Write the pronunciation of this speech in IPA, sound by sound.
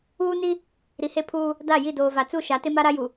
uː˦ n i˦ | ɾ i˨ h e˦ pʰ uː˦ | d a˦˨ j i˦˨ d oː˨ v a˨ t͡s u˦˨ ʃ a˨˦ t ɪ˦ m a˦ ɾ a˦ j u˨

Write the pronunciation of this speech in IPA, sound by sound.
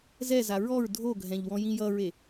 z ɛ z a ɹ ɔ ɹ dʱ o ɡʱ ɛ̃ ʎ w ɔ̃ j ĩ j ʌ ɹ e

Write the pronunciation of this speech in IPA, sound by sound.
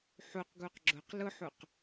ħ u q ɡ u q ɡ͡ǁ ʊ q l ʊ ħ u q

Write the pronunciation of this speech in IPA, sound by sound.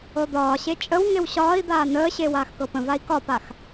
ɤ d̪ ɒː ɕ e t͡ʃʼ ə w ŋ e w ɕ ɒː i̯ d̪ aː n əː ɕ e w aː x k ɤ p ə̃ v a i̯ k ɒ p a x

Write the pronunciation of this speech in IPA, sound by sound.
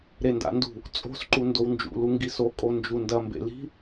ɾ e n d a̰ n d ṳ | t͡sʼ o̤ s ǃ u n d o w n d͡ʒ ṵ l u ŋ ɡ i s o kʼ o n d͡ʒ u n d ɐ m b ḛ l i̤

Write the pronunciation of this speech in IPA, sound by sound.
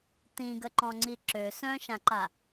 t ĩ ɡ ə ǃ ɔ̃ ŋ͡ǀ i ǁ ø s œ̃ ʃ ã ǃ a

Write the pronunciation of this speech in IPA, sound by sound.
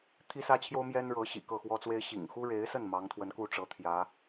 t̪ʰ i˥ s ä˥ t͡ɕʰ j o˥ ʊ̯ m j ɛ˥ n ɻ ɤ˧˥ ɕ ḭ˨˩ k ɤ˥˩ x w ɔ˥ t͡s w e˥ ɪ̯ ɕ ḭ˨˩ ŋ x u˥ ɻ e˧˥ ɪ̯ s ə˥˩ n m ɑ˧˥ ŋ t̪ʰ w ə˧˥ n k u˥˩ ʈ͡ʂ ɤ˧˥ t̪ʰ j ä˧˥

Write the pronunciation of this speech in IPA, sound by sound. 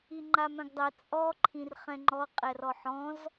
i ŋ͡ǃ a m œ̃ ɡ dˤ ɛ t͡sʼ ɔ ǃʰ ĩ r χ ɛ̃ ŋ͡ǃ ɔ qʼ ɛ r ɔ ħ ɔ̃ z

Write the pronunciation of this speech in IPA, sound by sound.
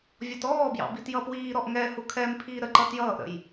vʲ ɔ t ɔː b j ɑ̰ b i t j ʌ p w iː ɾ ɔ ʔ ŋ ɛ h u kʰ ɛ m pʰ iː ɾ ə ǃ ʌ t j ʌː ʔ ɾ ə̰ j

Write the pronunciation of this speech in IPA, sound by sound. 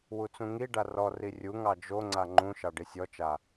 w u t͡s ũ ŋ i ɖ a r ɔ r i rʲ u ŋ ɑ d͡ʒ o ŋ͡ǀ a ŋ͡ǃ ũ ʃ ɑ ɖ i sʲ ɔ t͡ʃ a

